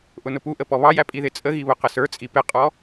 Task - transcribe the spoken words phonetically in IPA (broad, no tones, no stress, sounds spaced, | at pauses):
ʔ ʊ n ʊ p u ʔ ə p ɔ β ɑ j æ pʼ i ð ɪ t͡sʼ ə ɣ i β ʊ q ə s ə˞ t͡sʼ i p ɪ qʼ ɔ